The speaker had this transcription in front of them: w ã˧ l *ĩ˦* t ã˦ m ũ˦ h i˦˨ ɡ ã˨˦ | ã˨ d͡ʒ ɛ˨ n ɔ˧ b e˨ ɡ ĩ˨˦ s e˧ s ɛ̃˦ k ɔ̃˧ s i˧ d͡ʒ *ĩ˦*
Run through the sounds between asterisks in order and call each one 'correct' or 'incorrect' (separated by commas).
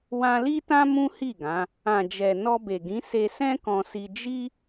incorrect, incorrect